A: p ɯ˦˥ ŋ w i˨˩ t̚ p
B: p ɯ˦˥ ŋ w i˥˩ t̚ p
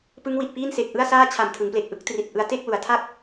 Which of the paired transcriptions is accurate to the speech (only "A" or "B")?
A